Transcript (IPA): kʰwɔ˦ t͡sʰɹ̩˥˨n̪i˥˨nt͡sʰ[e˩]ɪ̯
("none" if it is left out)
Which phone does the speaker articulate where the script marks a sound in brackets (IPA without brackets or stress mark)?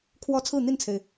e˩